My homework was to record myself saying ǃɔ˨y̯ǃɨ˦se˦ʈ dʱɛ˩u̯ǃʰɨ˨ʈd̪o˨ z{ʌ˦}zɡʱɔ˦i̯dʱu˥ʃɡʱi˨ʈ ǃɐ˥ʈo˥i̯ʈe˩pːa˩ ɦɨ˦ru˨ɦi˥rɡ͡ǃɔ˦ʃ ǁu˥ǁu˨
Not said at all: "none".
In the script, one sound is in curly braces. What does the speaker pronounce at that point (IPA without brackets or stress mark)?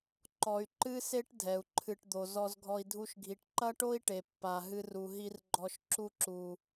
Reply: ɔ˦